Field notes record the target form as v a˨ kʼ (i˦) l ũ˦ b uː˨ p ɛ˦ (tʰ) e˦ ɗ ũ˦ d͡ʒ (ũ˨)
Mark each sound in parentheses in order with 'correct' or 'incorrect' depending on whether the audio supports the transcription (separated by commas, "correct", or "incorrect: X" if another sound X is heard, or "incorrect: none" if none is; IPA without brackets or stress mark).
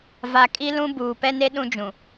correct, incorrect: n, correct